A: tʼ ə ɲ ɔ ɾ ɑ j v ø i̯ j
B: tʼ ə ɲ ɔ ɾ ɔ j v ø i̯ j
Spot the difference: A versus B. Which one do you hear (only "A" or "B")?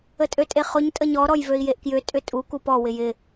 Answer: B